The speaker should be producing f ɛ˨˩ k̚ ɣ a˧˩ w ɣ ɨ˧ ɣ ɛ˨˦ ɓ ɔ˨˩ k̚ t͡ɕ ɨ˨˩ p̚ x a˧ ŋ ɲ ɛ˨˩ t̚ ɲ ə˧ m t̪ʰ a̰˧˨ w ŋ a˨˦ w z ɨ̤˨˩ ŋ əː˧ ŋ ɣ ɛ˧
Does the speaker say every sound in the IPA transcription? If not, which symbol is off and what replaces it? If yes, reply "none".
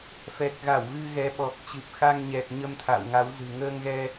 none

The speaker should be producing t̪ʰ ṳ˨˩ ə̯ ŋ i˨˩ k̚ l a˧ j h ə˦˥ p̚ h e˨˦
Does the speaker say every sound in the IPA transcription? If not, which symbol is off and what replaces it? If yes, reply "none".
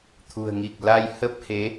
none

